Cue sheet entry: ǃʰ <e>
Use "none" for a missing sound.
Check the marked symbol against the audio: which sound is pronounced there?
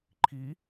i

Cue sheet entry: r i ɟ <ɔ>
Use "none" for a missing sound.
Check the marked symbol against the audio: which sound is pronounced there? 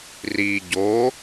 o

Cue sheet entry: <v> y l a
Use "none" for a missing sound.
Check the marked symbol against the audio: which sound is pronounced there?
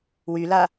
w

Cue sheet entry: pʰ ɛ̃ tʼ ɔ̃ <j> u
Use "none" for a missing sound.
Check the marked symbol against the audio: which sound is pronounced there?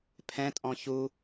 ç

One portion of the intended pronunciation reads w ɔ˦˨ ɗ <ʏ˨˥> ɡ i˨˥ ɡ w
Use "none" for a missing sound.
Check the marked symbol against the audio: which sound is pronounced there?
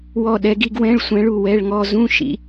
ɛ˨˥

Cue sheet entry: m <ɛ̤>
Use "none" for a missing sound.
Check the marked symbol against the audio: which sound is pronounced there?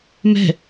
ɛ̤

